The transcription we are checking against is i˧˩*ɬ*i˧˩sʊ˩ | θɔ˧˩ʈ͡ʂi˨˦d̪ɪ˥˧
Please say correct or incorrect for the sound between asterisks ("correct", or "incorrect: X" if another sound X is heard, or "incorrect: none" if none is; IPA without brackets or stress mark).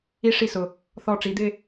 incorrect: ʂ